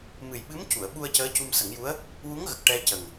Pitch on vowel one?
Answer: low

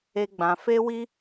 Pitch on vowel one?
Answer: high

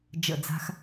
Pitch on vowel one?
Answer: falling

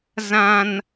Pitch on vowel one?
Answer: high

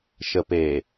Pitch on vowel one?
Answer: low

